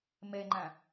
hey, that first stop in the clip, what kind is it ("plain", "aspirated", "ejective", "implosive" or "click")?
click